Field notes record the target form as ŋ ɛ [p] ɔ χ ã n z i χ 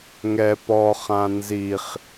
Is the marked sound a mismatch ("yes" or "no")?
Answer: no